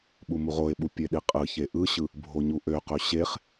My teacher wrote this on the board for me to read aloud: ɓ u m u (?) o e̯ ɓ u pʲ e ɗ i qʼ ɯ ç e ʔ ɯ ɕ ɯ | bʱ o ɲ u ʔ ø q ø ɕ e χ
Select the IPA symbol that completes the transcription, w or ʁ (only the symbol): ʁ